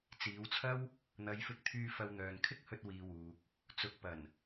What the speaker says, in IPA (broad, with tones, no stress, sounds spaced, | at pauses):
t͡s iː˨˧ w t͡sʰ ɐ˥ w | n̪ ɐ˨˧ j f ɪ˧ k̚ t̪ʰ yː˧ f ɐ˧ w n̪ œː˨ n kʰ ɪ˥ k̚ h ɵ˧ t̚ w iː˨ w uː˨ k̚ | t͡s ʊ˨˥ k̚ p ɐ˨˩ n